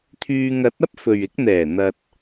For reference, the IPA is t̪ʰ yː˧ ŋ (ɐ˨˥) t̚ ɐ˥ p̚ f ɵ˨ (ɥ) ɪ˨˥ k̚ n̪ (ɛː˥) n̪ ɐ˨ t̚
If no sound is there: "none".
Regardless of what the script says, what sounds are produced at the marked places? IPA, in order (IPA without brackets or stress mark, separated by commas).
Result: ɐ˨˥, ɥ, ɛː˨˩